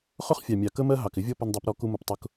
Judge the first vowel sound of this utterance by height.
high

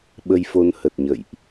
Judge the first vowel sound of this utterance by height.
mid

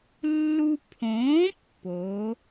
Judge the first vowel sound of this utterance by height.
high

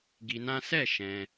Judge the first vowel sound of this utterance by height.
high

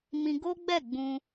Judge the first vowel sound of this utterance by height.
high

